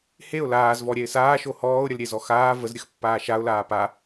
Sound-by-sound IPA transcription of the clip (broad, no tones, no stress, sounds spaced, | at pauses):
h e ʊ̯ l aː z v ɔ ɾʲ ɛ ɪ̯ s aː ʃ o h ɔː ʊ̯ ɾʲ ə l ɾʲ e z ɔ x aː v ə z ɾʲ ə x pː aː ʃ a ʊ̯ l aː p a